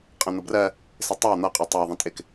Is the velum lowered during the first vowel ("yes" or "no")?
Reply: yes